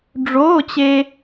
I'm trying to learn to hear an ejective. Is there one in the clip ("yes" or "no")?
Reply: no